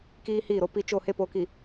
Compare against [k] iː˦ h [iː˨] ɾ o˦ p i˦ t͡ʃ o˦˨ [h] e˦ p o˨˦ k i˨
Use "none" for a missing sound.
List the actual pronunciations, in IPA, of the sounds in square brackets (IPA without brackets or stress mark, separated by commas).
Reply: k, iː˦˨, h